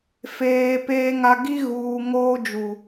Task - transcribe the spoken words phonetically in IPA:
feː˨peː˦ŋa˦ ɡi˦ɣuː˨ ŋoː˦d͡ʒu˨

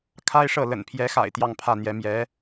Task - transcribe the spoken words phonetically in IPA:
kʰa˥ɪ̯ʂɤ˥˩ lə̰˨˩npʰjɛ˧˥xa̰˨˩ɪ̯ t̪jɑ˥˧ŋpʰä˥˩n̪jɛ˧˥ mjɛ˧˥

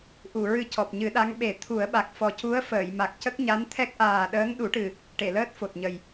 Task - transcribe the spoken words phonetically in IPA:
ʔu˨˩˨ ɹɨ˧cɔ˨˩p̚ɲɨ˨˩˦ɗa˧˥ŋ ɓe˨˩˦ t̪ʰu˨˩˦ə̯ɓa˨˩k̚ fɔ˨˩cu˧˥ə̯fəː˨˩˨j ma˨˩k̚cə˦˥k̚ɲa˧˥n t̪ʰɛ˦˥k̚ʔaː˨˩ɗəː˧˥ŋ ɗu˨˩˦ʈɨ˨˩ | ʈe˨˩˨ləː˦˥t̚fo˨˩t̚ɲə˨˩j

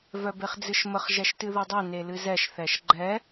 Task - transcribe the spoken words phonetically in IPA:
vœbeχd͡zɨʃməχ ʒɛʃtɨðudˤɛ nelɨzɛʃ θɛʃɡ͡ǃɛ

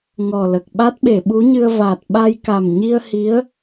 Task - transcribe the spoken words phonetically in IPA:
ŋɔ˨˩lə˨˩k̚ ɓa˦˥t̚ɓe˨˩˨ɓu˧˥ɲɨ˧ə̯ va˨˩t̚ ɓa˧jka˨˩mɲi˧ə̯ hi˧˥ə̯

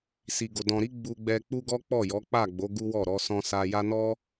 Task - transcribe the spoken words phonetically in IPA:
si˨ɡo˨ dɔ̃˨ɾi˨˦ ɡ͡bu˧ɡ͡bɛ˧ k͡pu˦ɡɔ˦ k͡pɔ˦˨jɔ˨˦k͡pa˦˨ɡ͡bo˨˦ ɡu˦wɔ˦˨ ɾɔ˧sɔ̃˧sa˧ja˦ nɔ˦

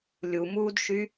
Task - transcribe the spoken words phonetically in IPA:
lʲumuːdʃy

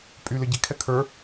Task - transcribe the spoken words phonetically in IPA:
pʼy lɘɟikʰɛ kʰə˞

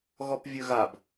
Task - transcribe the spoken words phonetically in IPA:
ɣɔpvʲɵɣab

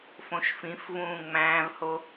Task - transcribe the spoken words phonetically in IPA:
fõʃfĩfvũː ŋ͡mæ̃ːvho

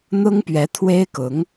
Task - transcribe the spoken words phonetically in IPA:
n̪ʊ˥ŋpɥɛ˧˥t̪ʰwe˥ɪ̯kʊ˧˥ŋ

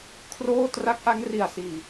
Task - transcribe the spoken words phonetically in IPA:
kʰroː˥˩ tra˦˥k̚ʔa˦˥ŋ ri˨˩a̯siː˨˩

